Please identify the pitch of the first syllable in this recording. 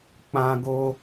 high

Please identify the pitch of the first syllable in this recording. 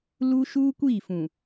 high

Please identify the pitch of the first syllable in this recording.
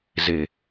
low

